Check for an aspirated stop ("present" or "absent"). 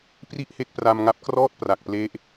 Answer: absent